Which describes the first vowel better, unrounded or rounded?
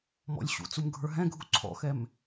rounded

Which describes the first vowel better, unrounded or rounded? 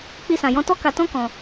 unrounded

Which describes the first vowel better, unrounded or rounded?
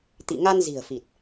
unrounded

